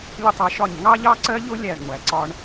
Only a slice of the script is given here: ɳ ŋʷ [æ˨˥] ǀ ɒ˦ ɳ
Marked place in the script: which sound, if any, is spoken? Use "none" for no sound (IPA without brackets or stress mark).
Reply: æ˨˥